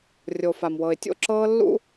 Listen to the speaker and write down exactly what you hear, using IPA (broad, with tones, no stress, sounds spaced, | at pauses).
rʲ o˨ f a˨ m w ɤ˨ ɪ̯ tʲ o̰˦ ǁ ɤː˦ lː ṵ˦